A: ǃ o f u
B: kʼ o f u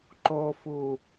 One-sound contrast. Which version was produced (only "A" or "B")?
A